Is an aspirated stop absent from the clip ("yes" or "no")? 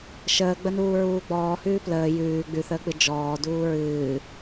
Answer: yes